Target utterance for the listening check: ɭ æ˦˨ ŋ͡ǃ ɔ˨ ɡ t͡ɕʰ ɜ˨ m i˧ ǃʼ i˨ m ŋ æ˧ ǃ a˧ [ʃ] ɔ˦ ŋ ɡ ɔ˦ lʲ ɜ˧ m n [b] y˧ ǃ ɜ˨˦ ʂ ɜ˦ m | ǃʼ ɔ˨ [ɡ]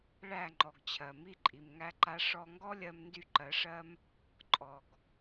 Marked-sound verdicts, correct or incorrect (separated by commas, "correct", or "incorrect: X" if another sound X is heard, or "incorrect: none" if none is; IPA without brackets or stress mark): incorrect: ʂ, incorrect: d, correct